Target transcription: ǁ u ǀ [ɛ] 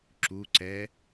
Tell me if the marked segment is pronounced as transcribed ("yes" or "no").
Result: yes